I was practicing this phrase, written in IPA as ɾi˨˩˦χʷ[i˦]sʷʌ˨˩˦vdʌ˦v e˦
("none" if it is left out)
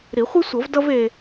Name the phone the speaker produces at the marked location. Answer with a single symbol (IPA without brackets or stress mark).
i˦